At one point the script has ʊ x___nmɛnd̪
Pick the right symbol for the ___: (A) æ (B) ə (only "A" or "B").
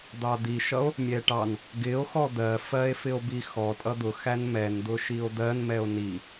A